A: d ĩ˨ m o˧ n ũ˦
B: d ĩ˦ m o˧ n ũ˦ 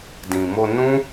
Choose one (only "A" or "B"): A